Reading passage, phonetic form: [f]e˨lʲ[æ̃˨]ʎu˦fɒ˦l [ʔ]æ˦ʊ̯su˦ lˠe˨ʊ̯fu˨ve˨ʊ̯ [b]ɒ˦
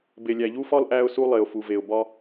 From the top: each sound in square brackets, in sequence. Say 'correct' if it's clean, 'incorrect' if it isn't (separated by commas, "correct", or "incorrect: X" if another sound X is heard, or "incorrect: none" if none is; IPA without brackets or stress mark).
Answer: incorrect: b, incorrect: æ˨, correct, correct